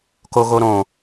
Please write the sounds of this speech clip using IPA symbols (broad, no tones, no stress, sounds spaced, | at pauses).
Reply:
k o ɣ o ɾ õ